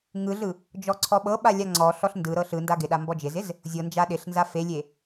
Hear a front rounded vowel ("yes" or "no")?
no